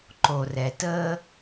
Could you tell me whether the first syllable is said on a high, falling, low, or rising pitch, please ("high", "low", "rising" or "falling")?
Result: low